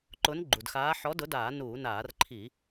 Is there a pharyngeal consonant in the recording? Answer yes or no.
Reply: yes